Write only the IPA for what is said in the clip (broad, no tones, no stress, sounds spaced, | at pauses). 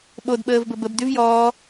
ɓ o d ɓ əː v b ə b ə b d y v j ɔː